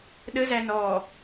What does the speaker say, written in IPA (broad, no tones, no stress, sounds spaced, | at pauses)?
ɗ ə z æ n ɔ